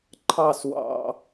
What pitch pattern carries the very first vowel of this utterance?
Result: falling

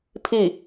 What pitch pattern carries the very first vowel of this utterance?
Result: falling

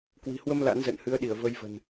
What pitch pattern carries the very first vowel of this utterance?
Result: low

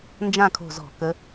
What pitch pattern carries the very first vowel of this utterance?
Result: falling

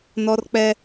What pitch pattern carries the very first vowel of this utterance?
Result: high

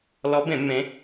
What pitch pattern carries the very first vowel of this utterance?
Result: rising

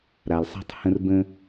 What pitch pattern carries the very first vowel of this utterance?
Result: low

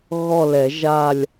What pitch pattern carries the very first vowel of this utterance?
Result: falling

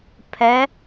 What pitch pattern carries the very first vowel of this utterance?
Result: rising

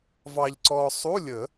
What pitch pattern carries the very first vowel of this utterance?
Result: low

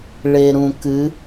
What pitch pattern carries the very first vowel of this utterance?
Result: low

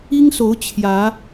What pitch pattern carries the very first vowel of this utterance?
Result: high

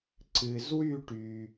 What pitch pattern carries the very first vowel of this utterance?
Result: low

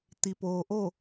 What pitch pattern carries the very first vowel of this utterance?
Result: low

